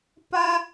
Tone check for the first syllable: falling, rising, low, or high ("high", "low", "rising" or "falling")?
high